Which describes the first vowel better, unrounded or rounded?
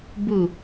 rounded